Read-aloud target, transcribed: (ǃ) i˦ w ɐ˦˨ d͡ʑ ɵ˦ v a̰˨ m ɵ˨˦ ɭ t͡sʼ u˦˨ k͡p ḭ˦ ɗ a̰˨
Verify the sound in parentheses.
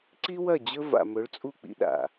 incorrect: ǀ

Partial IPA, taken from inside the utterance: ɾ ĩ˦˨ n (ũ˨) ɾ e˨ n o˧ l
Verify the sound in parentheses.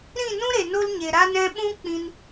incorrect: ũ˦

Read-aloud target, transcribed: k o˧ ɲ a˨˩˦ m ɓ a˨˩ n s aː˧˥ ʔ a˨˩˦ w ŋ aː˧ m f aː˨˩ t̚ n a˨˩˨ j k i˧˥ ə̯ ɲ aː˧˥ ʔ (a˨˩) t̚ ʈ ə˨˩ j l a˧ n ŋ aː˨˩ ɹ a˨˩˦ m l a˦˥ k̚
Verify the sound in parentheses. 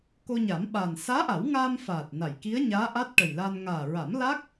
incorrect: a˦˥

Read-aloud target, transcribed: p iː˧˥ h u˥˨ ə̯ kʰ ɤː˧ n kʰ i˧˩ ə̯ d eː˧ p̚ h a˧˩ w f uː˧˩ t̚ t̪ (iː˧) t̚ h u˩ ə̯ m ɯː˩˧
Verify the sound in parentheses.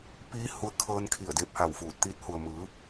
correct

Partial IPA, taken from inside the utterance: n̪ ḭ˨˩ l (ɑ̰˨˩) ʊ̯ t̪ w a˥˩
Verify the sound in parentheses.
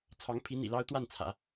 incorrect: ɑ˥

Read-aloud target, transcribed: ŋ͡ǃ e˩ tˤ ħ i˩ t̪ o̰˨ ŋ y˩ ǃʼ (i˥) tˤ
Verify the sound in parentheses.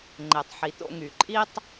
incorrect: i˦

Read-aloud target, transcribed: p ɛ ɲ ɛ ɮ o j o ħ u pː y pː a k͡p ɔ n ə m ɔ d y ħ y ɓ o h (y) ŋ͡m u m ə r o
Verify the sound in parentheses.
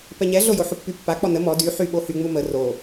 correct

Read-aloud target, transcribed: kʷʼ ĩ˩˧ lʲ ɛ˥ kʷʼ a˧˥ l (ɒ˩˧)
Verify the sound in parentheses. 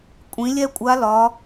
correct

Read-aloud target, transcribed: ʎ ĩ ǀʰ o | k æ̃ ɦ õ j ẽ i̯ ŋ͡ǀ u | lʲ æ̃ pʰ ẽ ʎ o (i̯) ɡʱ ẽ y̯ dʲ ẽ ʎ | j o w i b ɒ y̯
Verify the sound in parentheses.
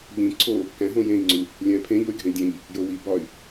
incorrect: y̯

